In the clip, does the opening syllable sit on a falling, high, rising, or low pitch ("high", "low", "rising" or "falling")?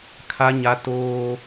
high